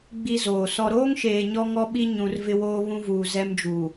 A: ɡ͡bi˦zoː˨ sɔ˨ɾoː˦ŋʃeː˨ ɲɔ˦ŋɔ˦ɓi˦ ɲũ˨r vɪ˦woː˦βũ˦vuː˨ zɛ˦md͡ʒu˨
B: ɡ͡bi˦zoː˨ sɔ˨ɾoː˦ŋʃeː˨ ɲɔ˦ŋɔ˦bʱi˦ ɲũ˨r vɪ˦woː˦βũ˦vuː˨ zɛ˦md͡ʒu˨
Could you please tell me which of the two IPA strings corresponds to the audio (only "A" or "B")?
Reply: A